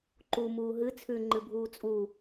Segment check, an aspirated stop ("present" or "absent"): present